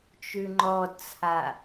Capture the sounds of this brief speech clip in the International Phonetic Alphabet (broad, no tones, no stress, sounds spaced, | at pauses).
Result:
t͡ʃ ʉ ŋ͡ǃ ɔ d t͡sʰ a